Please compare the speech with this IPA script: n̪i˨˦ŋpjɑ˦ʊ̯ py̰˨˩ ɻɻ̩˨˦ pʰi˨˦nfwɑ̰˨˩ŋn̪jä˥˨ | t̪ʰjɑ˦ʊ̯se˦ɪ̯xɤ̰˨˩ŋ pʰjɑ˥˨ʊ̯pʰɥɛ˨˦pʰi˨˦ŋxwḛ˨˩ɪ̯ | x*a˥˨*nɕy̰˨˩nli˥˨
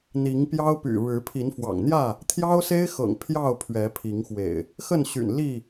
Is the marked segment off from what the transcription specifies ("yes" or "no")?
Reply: yes